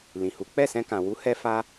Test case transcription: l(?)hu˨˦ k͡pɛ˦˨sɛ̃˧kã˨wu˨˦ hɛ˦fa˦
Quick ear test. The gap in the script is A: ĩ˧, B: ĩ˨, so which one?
B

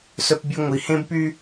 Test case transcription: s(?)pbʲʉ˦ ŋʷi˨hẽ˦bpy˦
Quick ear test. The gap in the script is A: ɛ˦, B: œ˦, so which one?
B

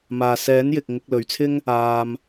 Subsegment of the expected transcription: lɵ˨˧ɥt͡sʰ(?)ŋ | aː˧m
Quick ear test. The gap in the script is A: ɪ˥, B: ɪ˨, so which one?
A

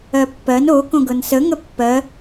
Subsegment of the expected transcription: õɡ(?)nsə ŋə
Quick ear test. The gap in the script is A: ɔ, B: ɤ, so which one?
B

